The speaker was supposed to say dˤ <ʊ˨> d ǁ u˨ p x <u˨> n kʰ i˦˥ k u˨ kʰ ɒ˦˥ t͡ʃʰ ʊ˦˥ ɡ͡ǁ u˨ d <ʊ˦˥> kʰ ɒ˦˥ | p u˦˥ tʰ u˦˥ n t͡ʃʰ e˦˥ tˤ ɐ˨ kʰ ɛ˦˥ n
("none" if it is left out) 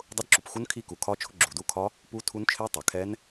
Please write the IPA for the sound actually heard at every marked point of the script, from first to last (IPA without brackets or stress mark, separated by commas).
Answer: ʊ˦˥, u˦˥, u˦˥